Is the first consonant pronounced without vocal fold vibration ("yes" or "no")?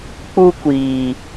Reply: yes